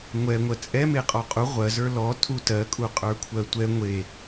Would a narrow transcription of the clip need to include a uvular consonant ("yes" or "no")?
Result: yes